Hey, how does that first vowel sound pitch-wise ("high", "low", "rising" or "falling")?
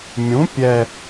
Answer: rising